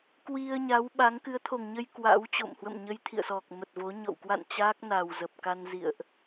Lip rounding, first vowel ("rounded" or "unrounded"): unrounded